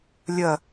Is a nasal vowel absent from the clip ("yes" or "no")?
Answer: yes